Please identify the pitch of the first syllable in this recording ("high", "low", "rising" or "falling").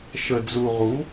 low